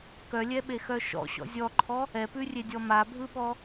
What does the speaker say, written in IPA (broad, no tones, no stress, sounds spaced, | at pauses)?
k œ lʲ ɛ ɓ e x œ ʃ ɔ̰ ɕ ɔ̰ zʲ ɔ ǃʰ ɔ | ɛ p ʉ rʲ e dʲ ɔ m a bʱ ɯ ɓ ɔ